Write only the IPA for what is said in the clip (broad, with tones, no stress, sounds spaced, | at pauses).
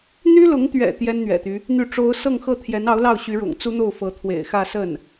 n̪ y˥ l ʊ˧˥ ŋ t̪ ɥ ɛ̰˨˩ t̪ j ɛ˥ n n̪ ɥ ɛ̰˨˩ t̪ y˦ | n̪ y˥˩ ʈ͡ʂ o˥ ʊ̯ s ɤ˥˧ ŋ x ɤ˥˩ t̪ʰ j ɛ˧˥ n ɑ˧˥ ʊ̯ l ɑ˥˩ ʊ̯ ɕ y˧˥ ɻ ʊ̰˨˩ ŋ t͡s u˥ n̪ o˥˩ ʊ̯ f ɤ˧˥ t̪ʰ w ḛ˨˩ ɪ̯ x ä˥˧ s ə˥˩ n